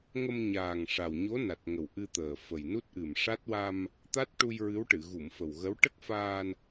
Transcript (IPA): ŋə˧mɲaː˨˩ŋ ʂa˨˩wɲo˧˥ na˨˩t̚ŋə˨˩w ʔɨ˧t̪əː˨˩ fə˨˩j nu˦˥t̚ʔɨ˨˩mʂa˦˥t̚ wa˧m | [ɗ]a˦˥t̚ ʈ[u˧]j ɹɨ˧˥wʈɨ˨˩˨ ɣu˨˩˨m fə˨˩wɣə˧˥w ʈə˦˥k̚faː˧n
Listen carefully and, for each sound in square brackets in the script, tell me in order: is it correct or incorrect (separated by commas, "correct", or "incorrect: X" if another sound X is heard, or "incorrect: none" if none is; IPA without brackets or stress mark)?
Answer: incorrect: t̪, correct